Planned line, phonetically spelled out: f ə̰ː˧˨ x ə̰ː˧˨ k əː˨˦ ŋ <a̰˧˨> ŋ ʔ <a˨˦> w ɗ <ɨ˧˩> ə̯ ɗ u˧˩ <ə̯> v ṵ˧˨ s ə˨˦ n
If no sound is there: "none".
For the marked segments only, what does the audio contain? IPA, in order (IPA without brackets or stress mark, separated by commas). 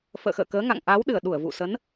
a̰˧˨, a˨˦, ɨ˧˩, ə̯